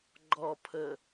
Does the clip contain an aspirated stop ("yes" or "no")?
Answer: yes